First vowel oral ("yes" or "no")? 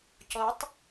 yes